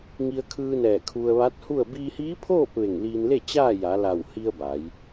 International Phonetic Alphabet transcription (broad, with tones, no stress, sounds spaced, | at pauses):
ŋ i˧ ə̯ kʰ ɯː˧ n ɛː˧˩ kʰ u˧ ə̯ ʋ a˧˥ t̚ h u˥˨ ə̯ b iː˧ h iː˧˥ pʰ oː˥˨ p̚ ʋ e˧˩ ŋ l iː˧ n l e˥˨ t͡ɕ aː˥˨ j a˩˧ l a˧˩ w h i˧ ə̯ b a˩˧ j